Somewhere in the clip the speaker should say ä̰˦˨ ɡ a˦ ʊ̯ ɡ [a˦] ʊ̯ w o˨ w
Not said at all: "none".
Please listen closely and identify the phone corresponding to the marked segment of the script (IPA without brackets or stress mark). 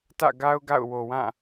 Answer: a̰˦˨